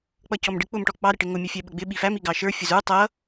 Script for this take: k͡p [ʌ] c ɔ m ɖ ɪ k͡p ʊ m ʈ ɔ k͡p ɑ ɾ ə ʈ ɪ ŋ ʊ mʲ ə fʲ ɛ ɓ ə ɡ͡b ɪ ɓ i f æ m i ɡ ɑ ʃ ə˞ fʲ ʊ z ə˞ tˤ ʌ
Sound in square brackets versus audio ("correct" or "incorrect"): correct